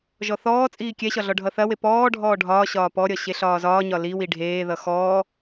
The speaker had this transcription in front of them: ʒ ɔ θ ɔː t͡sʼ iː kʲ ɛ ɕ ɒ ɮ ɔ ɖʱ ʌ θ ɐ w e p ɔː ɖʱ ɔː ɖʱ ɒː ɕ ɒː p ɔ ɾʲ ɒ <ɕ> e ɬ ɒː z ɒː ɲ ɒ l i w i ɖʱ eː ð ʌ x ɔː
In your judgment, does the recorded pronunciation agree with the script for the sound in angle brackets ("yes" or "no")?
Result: yes